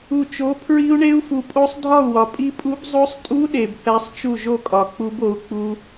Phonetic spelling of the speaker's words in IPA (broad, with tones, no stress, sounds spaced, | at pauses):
u˨ t͡ʃ o˨˥ pʰ ɹ i˦˥ u̯ ɳ e˦˥ u̯ f u˨ pʼ o˦˥ sˤ dʱ ɒ˥˨ u̯ w ɒ˨ pʼ i˦˥ pʼ u˦˥ b zˤ o˦˥ sˤ tʼ u˦˥ ɗ e˨ b θ æ˦˥ sˤ t͡ʃ u˥˨ ʒ o˥˨ kʼ ɒ˨ k͡p u˦˥ b o˨˥ u̯ k͡p u˦˥